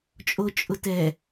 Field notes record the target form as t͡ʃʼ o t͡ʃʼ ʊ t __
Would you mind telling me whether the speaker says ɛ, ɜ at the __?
ɛ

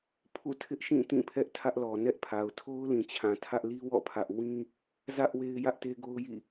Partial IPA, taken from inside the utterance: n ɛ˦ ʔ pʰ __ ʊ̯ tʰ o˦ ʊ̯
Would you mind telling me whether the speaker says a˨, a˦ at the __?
a˨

